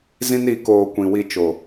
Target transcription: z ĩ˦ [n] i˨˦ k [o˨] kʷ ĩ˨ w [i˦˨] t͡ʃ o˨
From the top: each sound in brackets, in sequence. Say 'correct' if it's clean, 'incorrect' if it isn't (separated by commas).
correct, incorrect, incorrect